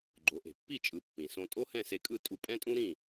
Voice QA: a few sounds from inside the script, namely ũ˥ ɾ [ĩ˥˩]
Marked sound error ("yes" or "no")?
no